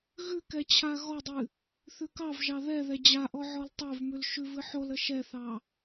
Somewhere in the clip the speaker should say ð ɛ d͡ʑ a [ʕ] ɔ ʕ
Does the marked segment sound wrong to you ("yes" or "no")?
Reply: yes